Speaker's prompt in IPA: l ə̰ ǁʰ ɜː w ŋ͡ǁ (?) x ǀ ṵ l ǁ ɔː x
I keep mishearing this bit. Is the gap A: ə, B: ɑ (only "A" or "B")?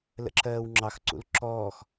B